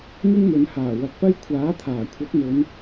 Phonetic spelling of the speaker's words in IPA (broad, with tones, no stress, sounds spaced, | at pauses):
ŋ ɪ˥ ŋ m ɵ˨˧ n h aː˨˩ w ɐ˨ k̚ p ɐ˥ j kʷʰ aː˨˥ t̪ʰ aː˨˩ kʷʰ ɐ˨˥ k̚ m ɵ˨˧ n